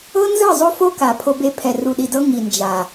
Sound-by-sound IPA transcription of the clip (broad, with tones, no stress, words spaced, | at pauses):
ɤ˦nzɯ˦˨zˤo˦fo˦ ka˨pʰo˦be˦ pʰɛ˨ru˨ɗi˨dɤ˦ ŋi˨nd͡ʒa˨